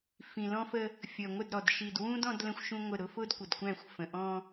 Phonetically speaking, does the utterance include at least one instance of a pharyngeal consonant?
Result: no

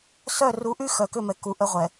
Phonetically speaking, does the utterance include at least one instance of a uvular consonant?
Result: yes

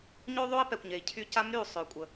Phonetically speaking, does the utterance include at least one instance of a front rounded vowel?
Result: yes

